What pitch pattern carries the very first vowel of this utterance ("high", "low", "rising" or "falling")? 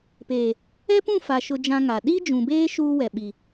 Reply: low